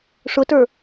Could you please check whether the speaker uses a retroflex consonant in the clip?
yes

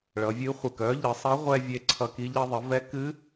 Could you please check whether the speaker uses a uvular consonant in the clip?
yes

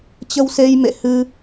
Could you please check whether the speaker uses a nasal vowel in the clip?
no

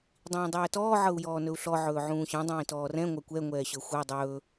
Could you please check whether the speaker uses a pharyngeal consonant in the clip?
yes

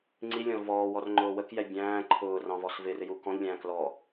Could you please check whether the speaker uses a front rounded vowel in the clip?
no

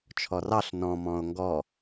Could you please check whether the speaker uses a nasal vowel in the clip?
yes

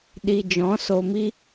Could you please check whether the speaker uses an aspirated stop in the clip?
no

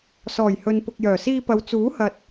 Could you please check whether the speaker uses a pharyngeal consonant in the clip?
no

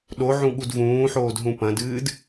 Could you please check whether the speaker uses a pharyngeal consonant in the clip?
yes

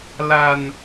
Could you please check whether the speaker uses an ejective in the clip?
no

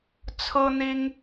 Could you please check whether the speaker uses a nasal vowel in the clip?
no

